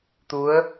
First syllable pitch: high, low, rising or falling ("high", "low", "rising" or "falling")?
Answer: rising